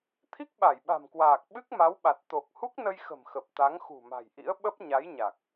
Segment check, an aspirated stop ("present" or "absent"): present